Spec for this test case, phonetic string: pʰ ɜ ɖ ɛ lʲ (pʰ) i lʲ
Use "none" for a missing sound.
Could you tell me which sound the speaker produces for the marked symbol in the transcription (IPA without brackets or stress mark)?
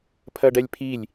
pʰ